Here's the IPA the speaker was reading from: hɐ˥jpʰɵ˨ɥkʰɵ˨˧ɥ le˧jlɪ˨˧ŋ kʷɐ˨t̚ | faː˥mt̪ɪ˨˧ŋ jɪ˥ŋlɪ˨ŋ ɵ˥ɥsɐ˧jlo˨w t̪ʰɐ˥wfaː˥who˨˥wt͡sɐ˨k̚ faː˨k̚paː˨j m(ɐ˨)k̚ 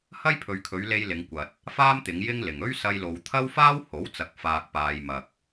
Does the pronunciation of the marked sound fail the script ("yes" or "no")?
no